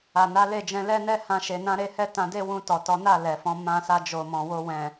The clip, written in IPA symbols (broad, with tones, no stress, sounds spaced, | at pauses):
a˨ n a˨˦ l e˦˨ d͡ʒ ɛ̃˧ l ɛ˦ n ɛ˦ h ã˦ ʃ e˧ n ã˦ ɾ e˦ h ɛ˦ t ã˧ d e˦ w ũ˧ t ɔ˨ t ɔ˨˦ n a˦˨ l ɛ˨ f ɔ̃˨˦ m ã˧ s a˧ d͡ʒ o˨ m ɔ̃˨ w o˧ w ɛ̃˨